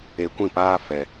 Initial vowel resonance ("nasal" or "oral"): oral